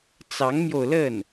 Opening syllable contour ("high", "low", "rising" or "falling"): rising